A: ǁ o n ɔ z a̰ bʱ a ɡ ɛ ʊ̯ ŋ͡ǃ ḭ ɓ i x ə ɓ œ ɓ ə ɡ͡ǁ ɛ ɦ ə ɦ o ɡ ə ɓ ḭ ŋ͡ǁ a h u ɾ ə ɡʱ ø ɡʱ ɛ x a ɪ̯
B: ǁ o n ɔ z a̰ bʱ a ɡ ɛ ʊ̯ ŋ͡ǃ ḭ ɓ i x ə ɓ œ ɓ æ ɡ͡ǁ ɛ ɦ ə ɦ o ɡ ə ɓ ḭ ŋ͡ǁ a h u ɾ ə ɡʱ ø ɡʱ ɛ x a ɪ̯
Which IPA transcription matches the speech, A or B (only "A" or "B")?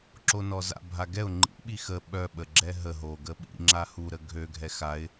A